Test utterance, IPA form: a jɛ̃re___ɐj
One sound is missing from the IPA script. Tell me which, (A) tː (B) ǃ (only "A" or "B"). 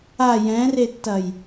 A